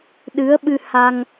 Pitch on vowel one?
rising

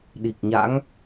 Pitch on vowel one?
low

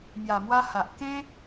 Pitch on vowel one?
low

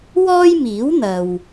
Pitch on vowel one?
high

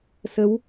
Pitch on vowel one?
rising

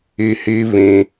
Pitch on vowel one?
low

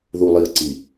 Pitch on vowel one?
low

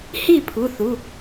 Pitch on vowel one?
falling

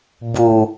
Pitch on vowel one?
low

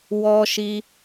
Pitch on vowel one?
high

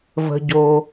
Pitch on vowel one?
low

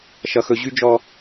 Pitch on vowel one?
high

